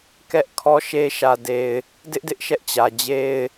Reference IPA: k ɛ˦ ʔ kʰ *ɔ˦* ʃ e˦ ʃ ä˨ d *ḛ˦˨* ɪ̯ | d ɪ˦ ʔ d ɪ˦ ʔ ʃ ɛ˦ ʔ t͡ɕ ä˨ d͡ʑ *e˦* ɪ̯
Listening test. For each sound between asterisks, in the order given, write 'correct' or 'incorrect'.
correct, incorrect, correct

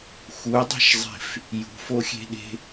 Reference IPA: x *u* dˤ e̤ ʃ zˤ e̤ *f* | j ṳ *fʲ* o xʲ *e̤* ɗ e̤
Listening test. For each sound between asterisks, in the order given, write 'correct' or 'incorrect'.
correct, correct, incorrect, correct

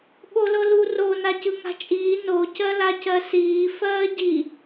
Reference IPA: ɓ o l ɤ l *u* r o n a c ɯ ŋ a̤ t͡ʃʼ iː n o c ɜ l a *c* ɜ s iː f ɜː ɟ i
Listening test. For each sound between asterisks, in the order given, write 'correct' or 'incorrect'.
correct, correct

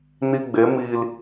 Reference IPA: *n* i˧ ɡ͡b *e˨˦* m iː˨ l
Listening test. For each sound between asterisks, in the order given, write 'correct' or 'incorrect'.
correct, correct

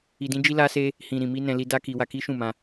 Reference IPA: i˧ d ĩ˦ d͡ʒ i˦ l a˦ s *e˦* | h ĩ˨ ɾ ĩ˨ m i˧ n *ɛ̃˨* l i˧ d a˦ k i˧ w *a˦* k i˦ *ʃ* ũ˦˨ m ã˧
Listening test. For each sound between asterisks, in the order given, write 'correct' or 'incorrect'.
correct, correct, incorrect, correct

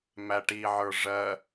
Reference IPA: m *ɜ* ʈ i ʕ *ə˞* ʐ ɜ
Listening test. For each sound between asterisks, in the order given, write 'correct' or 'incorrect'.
incorrect, correct

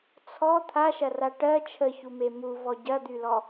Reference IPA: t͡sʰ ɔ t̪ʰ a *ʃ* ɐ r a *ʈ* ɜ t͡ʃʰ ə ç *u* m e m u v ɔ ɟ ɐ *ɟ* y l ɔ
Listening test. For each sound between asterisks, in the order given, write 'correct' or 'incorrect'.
correct, correct, correct, incorrect

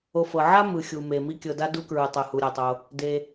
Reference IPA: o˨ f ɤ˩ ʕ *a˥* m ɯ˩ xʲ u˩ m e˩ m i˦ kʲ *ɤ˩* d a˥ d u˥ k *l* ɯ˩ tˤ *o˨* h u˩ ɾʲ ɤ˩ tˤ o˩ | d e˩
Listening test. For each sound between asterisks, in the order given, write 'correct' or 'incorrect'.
correct, correct, incorrect, incorrect

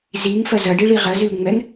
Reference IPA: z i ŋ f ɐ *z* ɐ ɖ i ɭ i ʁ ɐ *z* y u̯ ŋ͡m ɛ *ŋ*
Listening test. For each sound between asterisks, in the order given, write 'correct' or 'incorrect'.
correct, correct, correct

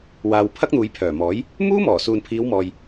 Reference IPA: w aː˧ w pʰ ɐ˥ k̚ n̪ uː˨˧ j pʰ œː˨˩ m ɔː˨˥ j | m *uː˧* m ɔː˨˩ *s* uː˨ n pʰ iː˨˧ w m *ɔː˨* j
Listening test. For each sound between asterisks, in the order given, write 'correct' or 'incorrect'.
incorrect, correct, correct

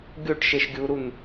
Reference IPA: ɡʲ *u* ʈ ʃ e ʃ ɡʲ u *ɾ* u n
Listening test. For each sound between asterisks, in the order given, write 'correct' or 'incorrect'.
incorrect, correct

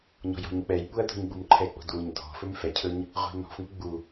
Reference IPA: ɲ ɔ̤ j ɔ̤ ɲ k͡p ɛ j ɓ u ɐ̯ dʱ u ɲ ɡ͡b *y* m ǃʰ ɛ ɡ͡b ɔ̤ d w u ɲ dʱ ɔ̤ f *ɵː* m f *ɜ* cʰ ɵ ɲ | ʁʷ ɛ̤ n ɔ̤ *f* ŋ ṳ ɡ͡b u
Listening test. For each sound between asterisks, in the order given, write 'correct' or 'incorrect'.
incorrect, incorrect, incorrect, correct

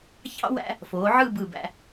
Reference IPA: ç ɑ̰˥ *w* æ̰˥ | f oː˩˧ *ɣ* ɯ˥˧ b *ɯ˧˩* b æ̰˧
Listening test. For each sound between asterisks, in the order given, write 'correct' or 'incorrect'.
correct, incorrect, correct

